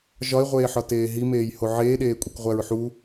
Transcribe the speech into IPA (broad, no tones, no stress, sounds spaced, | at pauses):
ʒ ɒ e̯ ʁʷ eː ħ ɒ t eː ɦ i m eː j h o ʕ eː ɗ eː kʷʼ i kʷ ʁʷ æ ɹ ħ u